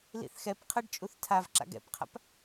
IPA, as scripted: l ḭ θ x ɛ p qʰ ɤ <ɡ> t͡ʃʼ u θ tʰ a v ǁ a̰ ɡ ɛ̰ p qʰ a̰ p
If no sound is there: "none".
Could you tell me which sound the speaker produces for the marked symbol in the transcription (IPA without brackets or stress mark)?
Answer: ɖ